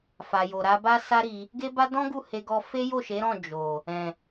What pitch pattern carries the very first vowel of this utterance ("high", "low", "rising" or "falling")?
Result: low